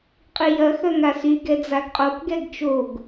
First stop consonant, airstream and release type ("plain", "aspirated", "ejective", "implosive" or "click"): ejective